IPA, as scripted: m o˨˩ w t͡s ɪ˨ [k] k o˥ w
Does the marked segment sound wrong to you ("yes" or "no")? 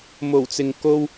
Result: yes